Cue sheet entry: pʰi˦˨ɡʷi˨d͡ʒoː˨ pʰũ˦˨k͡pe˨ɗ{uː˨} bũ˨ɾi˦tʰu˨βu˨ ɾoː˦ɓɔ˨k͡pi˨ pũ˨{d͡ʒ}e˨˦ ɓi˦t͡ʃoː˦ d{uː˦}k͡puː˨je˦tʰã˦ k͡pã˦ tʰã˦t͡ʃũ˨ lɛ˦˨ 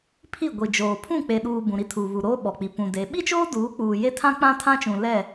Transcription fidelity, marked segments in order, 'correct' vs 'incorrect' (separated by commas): correct, incorrect, incorrect